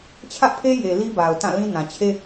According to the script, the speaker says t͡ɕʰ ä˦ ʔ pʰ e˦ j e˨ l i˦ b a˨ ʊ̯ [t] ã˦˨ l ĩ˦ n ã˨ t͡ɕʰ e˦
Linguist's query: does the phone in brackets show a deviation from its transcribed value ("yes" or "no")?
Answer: no